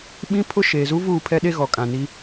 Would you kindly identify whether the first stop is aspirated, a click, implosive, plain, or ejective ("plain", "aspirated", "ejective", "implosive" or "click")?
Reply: implosive